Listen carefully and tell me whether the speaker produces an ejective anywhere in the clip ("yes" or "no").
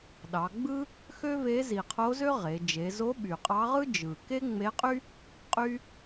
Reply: yes